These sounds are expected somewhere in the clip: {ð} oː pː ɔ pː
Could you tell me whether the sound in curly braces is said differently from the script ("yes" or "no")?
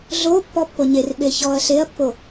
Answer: yes